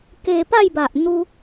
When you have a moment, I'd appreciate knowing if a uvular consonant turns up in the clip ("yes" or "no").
no